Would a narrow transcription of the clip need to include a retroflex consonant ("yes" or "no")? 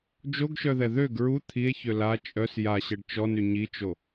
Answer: yes